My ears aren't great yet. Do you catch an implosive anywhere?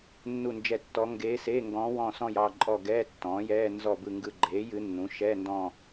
no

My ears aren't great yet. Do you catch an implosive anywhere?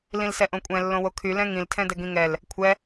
no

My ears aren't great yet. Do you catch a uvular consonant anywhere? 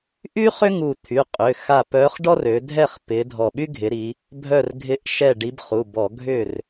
yes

